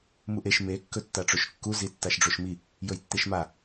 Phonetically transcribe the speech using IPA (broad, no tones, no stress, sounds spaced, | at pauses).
m u ʔ e ʃ m e kː ɵ tː a ʈ͡ʂ o ʃ kː u z i tː a ʃ ɖ͡ʐ o ʃ m i | j ɵ j tː e ʃ m a